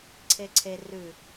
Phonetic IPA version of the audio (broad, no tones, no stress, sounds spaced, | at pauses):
ǀʰ e ǀʰ e r ʉ